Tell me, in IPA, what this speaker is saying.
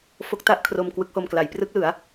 f o˦˥ k̚ t a˥˩ ʔ kʰ r o˧ m k w ɯ˦˥ k̚ h o˧ m k l a˩˦ j p r ɯ˦˥ k̚ l ɯ˩˦ a̯

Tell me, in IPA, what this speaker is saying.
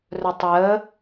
r ɵ tˤ j ə

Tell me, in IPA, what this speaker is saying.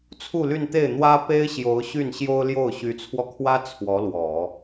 t͡sʰ u˥˧ l y˥˧ n t̪ e˥˩ ɪ̯ n̪ w ä˥ p e˥ ɪ̯ ɕ j o˧˥ ʊ̯ ɕ y˥˩ n ɕ j o˥ ʊ̯ l j o˥˩ ʊ̯ ɕ y˧˥ t͡sʰ w ɔ˧ kʰ w ä˥ t͡sʰ w ɔ˧˥ l w ɔ˨˩˦

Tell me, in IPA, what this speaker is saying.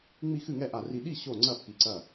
ŋ͡m i˧˩ x ɨ˧˩ ŋ ɛ˥˩ ʔ a˧˩ r i˧˩ ɗ i˥˩ ɕ o˧˩ ŋ͡ǀ ɐ˧˩ pː i˧˩ ǀ ɐ˥˩

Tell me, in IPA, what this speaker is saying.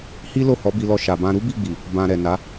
h i˦ l o˦˨ h ɔ˨˦ b i˧ l ɔ˧ ʃ a˨ b ã˧ ɾ u˦ b i˦˨ ɡ͡b i˨ | b ã˨ ɾ ɛ˨ n a˨˦

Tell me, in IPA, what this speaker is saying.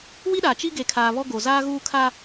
w i˦ ɗ a˨ t͡ʃ i˦ ɡ e˨ kʰ aː˨ β ɔ˦ ɡ o˨ z aː˦ ɣ uː˦ kʰ a˦

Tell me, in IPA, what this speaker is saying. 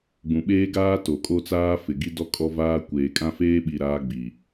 ɡ͡b ũ˨ ɓ eː˦ ɡ aː˦ t o˨ kʼ o˦ t͡s aː˦ f ɪ˨ ɡ i˦ d ɔ˦ kʼ ɔ˦ v aː˦ kʷ eː˨ kʼ ã˦ f eː˦ ɓ i˨ ɾ aː˦ ɡ͡b i˨

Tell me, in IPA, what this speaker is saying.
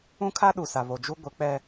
ũ˦ kʰ a˦ ɗ u˨ s a˨ β o˨ d͡ʒ u˦ ɡʷ ɪ˨˦ k͡p ɛ˦

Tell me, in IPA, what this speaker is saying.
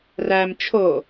r æ m t͡ʃʰ o

